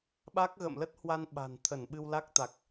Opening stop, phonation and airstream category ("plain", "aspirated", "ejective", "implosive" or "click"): implosive